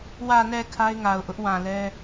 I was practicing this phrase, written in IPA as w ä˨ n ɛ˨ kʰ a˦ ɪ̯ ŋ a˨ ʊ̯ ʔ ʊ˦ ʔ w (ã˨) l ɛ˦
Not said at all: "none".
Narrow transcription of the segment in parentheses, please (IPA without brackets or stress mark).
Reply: ã˨